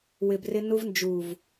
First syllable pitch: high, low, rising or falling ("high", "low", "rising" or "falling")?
low